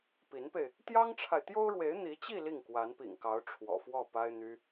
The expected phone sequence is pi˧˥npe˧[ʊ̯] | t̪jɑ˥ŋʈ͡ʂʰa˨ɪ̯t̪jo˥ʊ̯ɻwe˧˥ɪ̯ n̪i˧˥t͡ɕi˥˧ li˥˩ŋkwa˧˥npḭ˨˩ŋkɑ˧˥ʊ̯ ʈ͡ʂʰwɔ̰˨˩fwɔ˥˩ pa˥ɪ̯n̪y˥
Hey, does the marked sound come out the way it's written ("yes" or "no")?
no